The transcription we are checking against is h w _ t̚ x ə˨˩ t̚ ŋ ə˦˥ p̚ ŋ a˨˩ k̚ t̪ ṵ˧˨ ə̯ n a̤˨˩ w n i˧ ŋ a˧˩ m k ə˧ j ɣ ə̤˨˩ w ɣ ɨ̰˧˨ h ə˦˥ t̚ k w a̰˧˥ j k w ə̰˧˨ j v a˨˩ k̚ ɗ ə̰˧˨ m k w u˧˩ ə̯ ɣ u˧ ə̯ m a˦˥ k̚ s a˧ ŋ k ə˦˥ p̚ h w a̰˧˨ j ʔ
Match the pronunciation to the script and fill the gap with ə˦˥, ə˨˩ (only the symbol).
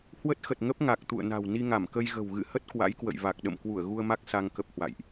ə˦˥